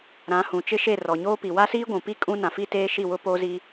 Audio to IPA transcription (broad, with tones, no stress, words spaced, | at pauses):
ɾã˨˦hũ˨t͡ʃɪ˦ʃe˦˨ rɔ˨ɲoː˦pi˨ wa˦siː˦ɡʷũ˨pi˦ kʼũ˦ nã˨fi˦teː˦ ʃi˦˨wʊ˦poː˦zi˦